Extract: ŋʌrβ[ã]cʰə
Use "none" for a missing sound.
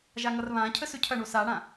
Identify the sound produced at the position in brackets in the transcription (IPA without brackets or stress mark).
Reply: ã